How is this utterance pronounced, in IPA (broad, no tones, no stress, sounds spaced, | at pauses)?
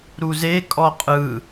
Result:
ɾ u z e kʼ ɔ qʼ ɯ